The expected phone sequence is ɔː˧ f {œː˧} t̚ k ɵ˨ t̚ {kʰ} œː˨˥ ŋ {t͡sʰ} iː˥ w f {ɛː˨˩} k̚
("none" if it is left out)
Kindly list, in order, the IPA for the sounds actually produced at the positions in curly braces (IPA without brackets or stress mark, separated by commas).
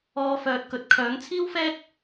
œː˨, kʰ, t͡sʰ, ɛː˥